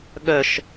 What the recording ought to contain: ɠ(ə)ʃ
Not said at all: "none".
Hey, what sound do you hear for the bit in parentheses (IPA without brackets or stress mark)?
œ